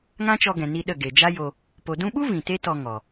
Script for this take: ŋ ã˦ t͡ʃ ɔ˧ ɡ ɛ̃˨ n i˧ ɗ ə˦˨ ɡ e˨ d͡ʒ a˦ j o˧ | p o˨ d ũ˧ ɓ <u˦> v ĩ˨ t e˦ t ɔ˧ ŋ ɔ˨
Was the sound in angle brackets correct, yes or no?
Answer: yes